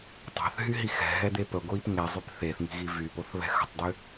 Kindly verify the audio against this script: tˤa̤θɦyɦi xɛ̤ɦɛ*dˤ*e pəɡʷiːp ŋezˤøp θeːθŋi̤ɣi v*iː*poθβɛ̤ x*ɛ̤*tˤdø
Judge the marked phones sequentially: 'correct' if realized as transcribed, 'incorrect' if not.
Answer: incorrect, incorrect, incorrect

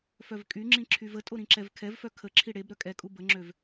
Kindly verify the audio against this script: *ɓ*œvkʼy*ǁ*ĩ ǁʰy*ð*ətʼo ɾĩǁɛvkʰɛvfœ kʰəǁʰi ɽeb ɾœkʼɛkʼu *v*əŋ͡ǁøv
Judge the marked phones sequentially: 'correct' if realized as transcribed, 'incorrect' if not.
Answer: incorrect, incorrect, incorrect, incorrect

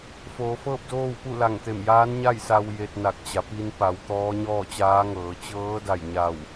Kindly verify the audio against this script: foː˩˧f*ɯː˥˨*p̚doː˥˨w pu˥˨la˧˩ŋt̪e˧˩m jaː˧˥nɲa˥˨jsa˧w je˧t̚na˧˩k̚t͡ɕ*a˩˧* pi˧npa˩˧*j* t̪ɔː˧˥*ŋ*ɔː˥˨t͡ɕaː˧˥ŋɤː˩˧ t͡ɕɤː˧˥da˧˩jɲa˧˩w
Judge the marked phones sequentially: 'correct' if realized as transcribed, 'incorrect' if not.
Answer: incorrect, correct, incorrect, incorrect

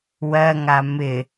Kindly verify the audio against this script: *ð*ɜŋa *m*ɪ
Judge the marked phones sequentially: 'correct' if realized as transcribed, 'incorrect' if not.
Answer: incorrect, correct

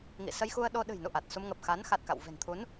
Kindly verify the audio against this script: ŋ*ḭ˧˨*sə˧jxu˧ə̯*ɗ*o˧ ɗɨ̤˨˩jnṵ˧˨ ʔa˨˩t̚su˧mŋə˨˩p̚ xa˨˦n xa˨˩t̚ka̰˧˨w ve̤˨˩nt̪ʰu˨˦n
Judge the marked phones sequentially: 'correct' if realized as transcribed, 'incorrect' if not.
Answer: correct, correct

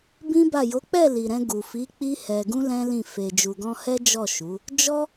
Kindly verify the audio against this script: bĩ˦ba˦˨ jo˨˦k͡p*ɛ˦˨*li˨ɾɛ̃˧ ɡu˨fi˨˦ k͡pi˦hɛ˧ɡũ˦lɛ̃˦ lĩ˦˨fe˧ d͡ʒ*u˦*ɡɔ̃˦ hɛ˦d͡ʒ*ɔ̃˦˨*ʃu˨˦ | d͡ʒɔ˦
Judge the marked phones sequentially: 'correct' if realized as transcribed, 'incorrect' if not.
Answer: correct, incorrect, incorrect

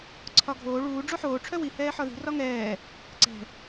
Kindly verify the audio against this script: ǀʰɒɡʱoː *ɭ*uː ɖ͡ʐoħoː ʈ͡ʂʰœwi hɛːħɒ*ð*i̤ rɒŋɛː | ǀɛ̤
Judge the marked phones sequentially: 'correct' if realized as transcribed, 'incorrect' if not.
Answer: correct, correct

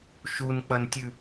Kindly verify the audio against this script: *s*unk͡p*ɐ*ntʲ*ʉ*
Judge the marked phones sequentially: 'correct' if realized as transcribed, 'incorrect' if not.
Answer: incorrect, correct, correct

